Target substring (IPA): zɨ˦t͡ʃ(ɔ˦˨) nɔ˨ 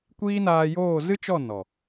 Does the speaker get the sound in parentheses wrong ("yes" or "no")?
no